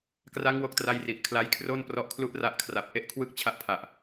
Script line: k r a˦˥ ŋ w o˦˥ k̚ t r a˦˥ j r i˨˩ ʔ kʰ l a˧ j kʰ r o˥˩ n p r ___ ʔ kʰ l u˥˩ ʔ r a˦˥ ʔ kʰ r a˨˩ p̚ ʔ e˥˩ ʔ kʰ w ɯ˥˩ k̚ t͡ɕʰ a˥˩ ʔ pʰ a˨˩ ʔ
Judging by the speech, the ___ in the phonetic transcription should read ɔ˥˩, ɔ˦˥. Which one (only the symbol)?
ɔ˦˥